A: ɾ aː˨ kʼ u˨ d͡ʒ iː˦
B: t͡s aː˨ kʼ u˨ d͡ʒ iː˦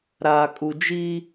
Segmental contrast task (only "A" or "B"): A